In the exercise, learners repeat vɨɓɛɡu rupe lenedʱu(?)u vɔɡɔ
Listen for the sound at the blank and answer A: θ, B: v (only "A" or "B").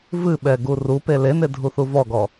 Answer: A